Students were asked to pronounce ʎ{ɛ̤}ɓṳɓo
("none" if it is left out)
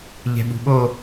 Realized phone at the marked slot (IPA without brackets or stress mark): ɛ̤